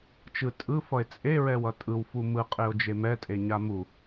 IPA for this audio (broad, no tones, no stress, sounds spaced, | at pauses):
t͡ʃ ɯ tʼ ɯ f ʌ e̯ t͡sʼ e ɹ ɛ w ʌ tʼ ɯ w f u m ɯ qʼ e o̯ d͡ʒ e m ɛ tʼ e ɲ a m u